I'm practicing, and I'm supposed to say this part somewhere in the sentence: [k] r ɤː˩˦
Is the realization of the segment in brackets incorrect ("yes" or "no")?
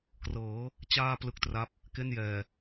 no